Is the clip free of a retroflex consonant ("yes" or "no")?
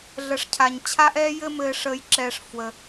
no